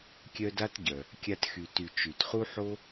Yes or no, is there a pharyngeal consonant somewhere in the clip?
yes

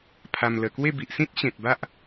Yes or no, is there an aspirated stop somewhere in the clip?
yes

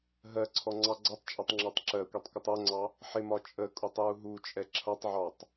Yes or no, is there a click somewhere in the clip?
yes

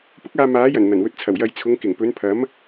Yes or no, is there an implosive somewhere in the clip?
no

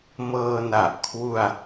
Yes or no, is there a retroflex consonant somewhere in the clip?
no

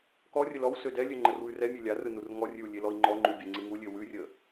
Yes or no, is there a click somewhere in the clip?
yes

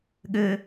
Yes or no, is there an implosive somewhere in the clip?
yes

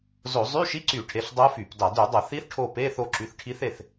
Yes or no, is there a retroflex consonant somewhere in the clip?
yes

